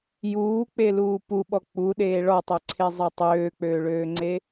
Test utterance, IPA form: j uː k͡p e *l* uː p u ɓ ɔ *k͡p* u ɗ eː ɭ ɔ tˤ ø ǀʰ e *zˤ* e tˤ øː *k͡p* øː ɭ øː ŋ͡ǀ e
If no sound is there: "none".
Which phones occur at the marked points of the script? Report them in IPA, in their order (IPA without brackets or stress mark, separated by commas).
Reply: l, k͡p, zˤ, k͡p